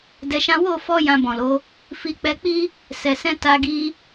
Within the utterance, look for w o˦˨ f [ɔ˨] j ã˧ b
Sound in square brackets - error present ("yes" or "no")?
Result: yes